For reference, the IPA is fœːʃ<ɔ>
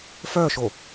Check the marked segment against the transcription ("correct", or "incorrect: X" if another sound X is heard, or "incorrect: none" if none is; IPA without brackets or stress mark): incorrect: o